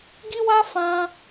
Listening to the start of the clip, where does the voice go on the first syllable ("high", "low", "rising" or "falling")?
high